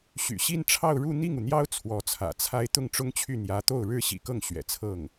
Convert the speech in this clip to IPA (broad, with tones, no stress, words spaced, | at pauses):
ɕy̰˨˩ɕi˥˧nʈ͡ʂʰɑ˥˧ʊ̯ ɻu˥˧ n̪i˥˩ŋu˩n̪jɑ˥ʊ̯ t͡sʰwɔ˧˥t͡sʰä̰˨˩t͡sʰa˥ɪ̯ t̪ʊ˥˩ŋʈ͡ʂʊ˥ŋt͡ɕʰy˥˩ n̪jä˧˥t̪o˥˩ʊ̯ ɻɻ̩˥ɕḭ˨˩kɤ˥˩ŋ ɕɥɛ̰˨˩t͡sʰɤ˥˩ŋ